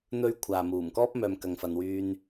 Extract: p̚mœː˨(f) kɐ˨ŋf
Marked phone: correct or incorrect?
incorrect